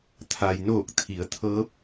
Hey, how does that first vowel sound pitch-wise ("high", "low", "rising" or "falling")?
low